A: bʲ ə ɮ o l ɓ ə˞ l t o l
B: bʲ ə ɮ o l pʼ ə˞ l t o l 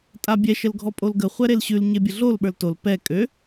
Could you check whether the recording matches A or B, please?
A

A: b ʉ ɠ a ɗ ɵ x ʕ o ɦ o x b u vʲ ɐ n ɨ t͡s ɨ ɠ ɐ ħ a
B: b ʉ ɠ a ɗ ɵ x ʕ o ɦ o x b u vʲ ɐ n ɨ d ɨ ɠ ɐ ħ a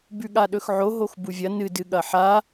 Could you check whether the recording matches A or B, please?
B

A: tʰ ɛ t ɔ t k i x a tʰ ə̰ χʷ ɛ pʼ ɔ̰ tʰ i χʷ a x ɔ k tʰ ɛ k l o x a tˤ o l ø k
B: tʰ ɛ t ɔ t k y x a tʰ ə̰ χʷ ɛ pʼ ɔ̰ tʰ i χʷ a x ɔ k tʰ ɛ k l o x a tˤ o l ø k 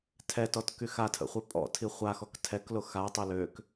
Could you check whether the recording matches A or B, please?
B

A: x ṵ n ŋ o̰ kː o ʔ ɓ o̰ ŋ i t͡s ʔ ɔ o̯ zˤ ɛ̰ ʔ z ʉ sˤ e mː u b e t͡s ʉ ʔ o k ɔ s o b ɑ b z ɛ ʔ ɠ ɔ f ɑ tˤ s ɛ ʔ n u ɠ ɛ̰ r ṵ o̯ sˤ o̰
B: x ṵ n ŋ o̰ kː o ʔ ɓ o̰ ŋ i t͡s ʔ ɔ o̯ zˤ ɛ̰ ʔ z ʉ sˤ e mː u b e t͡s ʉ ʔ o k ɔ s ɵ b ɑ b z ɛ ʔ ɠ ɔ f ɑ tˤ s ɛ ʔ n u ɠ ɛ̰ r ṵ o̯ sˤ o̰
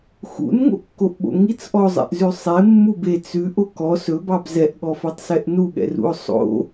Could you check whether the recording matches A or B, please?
B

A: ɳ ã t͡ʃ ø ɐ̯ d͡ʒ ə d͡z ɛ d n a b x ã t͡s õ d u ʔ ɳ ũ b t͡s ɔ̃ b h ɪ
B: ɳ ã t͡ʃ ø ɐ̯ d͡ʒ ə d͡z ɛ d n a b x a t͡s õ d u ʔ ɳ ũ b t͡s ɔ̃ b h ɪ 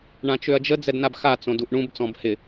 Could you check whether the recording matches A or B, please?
B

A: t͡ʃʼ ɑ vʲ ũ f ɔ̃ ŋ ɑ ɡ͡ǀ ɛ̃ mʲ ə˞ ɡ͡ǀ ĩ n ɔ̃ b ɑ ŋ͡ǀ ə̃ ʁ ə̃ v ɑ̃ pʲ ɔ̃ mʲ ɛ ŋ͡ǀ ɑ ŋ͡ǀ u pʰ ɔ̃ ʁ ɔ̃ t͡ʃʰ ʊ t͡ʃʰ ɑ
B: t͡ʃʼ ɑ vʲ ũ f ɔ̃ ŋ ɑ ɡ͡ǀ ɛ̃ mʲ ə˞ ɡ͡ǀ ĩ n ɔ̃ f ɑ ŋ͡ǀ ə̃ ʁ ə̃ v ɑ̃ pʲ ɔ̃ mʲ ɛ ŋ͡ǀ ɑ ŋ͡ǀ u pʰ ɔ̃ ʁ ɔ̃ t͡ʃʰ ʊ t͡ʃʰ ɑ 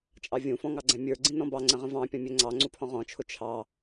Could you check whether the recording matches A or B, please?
A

